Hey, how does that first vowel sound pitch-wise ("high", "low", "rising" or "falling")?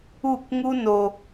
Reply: falling